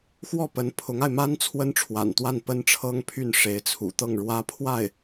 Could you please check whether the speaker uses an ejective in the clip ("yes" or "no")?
no